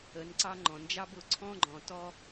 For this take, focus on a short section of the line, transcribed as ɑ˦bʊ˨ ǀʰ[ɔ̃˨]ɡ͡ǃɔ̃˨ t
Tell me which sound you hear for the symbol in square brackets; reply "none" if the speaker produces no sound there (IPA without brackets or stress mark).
ɔ̃˦